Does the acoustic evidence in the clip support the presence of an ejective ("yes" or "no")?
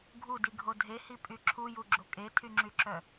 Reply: yes